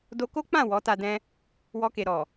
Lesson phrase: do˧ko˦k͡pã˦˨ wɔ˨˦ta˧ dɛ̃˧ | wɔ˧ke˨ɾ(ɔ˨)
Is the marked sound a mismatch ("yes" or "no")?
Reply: no